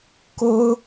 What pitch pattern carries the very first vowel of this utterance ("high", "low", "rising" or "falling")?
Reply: high